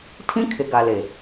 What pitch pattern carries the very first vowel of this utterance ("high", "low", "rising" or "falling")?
high